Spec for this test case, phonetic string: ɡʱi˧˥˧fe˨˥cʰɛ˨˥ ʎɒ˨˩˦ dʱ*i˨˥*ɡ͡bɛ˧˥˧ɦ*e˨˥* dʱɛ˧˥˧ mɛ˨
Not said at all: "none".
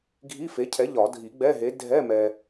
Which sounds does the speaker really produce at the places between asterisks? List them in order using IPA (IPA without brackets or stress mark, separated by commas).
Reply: i˨˩˦, e˨˥